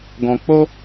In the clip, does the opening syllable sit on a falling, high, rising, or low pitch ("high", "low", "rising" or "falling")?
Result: low